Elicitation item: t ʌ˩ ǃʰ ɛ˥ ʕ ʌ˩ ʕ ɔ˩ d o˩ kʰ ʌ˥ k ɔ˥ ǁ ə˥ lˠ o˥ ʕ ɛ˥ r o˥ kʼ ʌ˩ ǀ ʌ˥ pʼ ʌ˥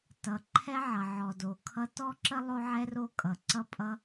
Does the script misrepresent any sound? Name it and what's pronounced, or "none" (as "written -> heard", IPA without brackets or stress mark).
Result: k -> t